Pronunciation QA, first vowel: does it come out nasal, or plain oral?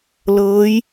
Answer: oral